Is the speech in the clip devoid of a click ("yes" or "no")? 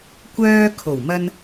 yes